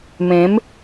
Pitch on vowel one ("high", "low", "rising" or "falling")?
rising